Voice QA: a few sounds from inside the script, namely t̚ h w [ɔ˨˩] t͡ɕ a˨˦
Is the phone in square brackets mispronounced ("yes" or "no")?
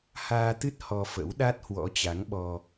yes